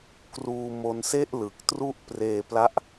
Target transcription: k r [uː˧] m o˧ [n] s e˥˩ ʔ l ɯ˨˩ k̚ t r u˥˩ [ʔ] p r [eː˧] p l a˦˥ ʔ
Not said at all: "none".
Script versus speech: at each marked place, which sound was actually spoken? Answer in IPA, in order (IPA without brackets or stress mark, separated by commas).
uː˧, n, ʔ, eː˧